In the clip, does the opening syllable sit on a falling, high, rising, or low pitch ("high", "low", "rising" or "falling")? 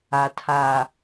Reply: low